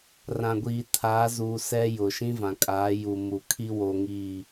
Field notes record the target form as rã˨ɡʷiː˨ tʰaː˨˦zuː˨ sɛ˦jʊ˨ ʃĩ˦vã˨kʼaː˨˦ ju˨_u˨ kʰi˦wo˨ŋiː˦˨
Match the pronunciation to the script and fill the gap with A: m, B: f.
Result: A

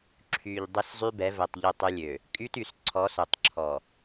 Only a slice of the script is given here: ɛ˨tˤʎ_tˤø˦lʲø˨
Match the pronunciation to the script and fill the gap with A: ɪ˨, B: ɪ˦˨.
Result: B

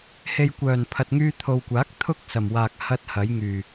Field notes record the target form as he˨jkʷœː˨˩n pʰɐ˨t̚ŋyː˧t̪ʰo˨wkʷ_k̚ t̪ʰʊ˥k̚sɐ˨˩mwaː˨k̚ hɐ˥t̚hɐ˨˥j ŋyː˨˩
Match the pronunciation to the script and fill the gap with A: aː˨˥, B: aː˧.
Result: A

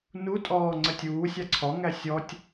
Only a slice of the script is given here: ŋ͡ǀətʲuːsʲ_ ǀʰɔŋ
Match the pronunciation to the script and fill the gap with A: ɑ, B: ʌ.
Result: A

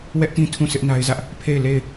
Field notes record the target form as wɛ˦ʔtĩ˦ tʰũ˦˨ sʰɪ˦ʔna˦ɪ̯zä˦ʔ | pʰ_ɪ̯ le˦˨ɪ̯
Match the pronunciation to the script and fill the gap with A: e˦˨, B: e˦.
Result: A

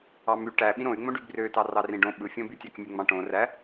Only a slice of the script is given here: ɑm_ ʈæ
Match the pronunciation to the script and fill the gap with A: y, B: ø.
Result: A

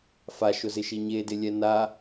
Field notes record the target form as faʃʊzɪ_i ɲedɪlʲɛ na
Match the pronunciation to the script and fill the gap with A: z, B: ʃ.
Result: B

